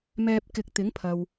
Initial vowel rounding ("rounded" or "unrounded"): unrounded